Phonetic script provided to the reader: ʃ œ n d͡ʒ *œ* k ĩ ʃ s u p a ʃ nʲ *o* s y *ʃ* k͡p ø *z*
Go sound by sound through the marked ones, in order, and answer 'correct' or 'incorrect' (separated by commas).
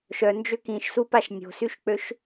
incorrect, incorrect, correct, incorrect